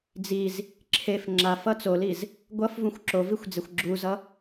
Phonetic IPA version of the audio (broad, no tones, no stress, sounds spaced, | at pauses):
d͡z i z | ǁʰ e f ŋ͡ǁ a f ʌ t͡s o l i z | ɡʷ ʌ f v ũ xʷ ǁ o v i xʷ d͡z e xʷ ɡ͡ǁ u z ʌ